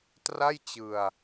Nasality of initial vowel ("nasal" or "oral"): oral